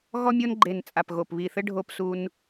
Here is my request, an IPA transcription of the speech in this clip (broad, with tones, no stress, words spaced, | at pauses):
ɣɔ˦mʲo˦nɡ͡ǃe˨˩n t͡sʼa˨˩pɣo˨˩pβi˨˩θɘ˦ ɖʱo˦psu˦n